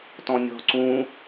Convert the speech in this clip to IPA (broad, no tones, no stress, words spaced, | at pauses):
tɔ̃nʲɔ̤ ǀũ